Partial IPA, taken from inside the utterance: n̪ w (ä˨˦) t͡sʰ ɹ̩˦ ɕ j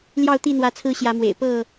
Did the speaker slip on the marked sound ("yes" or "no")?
no